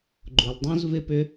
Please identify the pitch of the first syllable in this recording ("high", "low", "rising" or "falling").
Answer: low